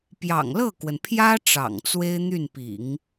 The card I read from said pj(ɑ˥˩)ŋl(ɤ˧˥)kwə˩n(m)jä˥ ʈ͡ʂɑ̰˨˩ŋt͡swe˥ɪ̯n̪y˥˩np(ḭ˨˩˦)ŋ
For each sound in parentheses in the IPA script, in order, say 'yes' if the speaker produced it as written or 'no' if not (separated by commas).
no, no, no, yes